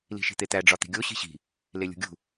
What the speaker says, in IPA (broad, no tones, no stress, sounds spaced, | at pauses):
l i̤ ʃ i̤ t̪ e t̪ æ ɖ͡ʐ ɒ t̪ i̤ ɡʲ o ɕ i̤ ɕ i̤ | l e lʲ ṳ ɡʲ ṳ